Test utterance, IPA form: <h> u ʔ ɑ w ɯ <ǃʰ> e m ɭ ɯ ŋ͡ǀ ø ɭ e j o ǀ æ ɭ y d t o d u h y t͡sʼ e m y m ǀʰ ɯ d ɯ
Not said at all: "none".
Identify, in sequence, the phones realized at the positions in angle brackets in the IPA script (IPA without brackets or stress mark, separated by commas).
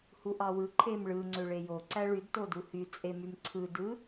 h, ǃʰ